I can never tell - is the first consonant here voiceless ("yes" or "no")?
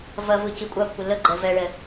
no